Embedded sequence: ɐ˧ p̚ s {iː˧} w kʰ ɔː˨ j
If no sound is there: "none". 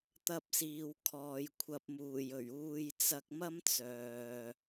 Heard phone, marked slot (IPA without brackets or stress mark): iː˨